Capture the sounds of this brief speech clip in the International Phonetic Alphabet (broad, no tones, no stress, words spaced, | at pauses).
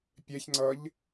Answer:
pʲɛçŋ͡ǀʌʎ